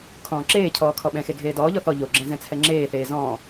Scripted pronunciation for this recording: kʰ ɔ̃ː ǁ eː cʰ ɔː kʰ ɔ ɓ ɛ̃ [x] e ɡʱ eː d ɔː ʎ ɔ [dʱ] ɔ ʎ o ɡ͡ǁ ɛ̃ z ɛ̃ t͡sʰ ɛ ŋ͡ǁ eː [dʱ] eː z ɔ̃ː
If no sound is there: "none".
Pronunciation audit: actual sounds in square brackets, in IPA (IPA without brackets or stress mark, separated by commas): x, θ, θ